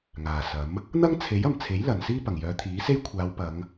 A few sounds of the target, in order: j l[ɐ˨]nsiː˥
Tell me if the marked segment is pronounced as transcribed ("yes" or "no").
yes